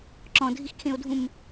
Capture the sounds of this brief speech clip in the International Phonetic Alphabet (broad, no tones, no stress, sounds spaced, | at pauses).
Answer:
ǁ ɔ̃ dʱ i x kʰ ẽ o̯ dʱ ũ m